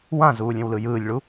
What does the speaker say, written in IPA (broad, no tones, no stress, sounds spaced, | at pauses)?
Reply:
w ã z uː lʲ ẽ w l ɯ j ɯː lʲ ɭ u